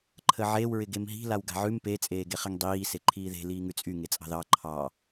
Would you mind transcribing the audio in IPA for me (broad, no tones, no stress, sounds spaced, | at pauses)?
ǃʰ ə ʕ e w ɹ ɪ ɡ e m ɦ i̤ l a w ɡ a̤ ʕ ʉ m p e t͡sʼ eː ɡ e χ ɪ ŋ dˤ iː s e ǃʰ iː ð e̤ l iː ŋ ʉ t͡sʼ y ŋ e t͡sʼ ɑ̤ ð ɑ ǃʰ ɑ